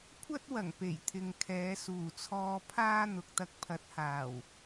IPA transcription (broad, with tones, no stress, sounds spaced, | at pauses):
kʷʰ ɐ˥ t̚ w ɐ˨˩ ŋ p e˨˩ j t̪ʰ ɪ˨ ŋ kʰ ɛː˨˧ s uː˨˩ t͡sʰ ɔː˧ pʰ aː˥ n̪ ʊ˨ k̚ t̪ ɐ˧ k̚ pʰ ɐ˨˥ t̚ h aː˨˩ w